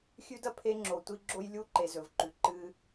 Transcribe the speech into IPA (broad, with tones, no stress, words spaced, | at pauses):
xʲʉ˦dɐ˦ pʰe˦ŋ͡ǁo˨ tʷi˦ ɡ͡ǁo˦jlʲu˦ǃe˨ zɵ˨vǃʉ˨ ǃɨ˦